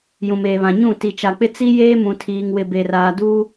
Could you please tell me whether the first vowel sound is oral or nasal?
nasal